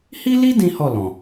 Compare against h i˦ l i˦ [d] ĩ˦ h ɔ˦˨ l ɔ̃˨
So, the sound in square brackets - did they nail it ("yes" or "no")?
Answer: yes